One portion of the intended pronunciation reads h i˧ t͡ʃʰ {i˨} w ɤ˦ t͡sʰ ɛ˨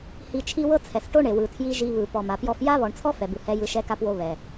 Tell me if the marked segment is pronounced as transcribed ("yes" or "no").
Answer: no